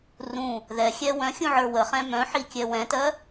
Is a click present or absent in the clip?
absent